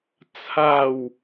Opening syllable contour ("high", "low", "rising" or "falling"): falling